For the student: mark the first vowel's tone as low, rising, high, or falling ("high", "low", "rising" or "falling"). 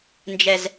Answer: low